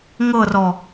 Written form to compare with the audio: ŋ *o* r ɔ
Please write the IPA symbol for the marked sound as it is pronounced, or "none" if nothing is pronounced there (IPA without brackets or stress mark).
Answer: ɤ